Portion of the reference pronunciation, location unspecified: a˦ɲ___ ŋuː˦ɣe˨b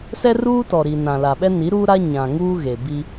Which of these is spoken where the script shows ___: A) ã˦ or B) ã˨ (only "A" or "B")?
B